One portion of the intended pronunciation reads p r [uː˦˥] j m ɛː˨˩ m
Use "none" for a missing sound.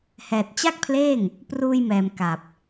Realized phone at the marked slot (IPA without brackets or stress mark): uː˧